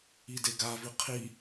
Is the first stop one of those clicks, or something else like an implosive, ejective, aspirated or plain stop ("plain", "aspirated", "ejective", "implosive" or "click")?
plain